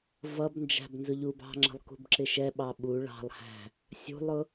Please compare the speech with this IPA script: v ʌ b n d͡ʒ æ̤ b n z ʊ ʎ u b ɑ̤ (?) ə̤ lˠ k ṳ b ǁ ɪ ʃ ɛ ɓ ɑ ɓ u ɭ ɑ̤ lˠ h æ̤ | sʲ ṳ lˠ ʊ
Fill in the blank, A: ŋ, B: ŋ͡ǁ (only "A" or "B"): B